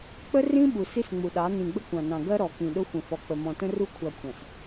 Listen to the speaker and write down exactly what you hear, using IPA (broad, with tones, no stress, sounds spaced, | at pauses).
k͡p ə˦ r ĩ˦ ɓ u˨ s i˦ s ŋ͡m u˨ ɗ ɑ˨˦ n ĩ˨ ɡ͡b ə˦ kʷ ɑ̃˨ n ɑ̃˨ ɡ ɜ˦ ɾ ɔ˨ k ĩ˨ ɗ ʊ˦ xʷ ə̃˨ f ɔ˨ k͡p ə˨ m ɔ̃˨ t ə̃˦ r u˦ kʷʰ ɑ˨ kʷʰ ɑ̃˨ s